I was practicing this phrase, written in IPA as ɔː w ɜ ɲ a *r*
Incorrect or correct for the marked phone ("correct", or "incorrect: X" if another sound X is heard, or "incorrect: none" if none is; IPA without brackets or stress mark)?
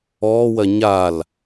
incorrect: l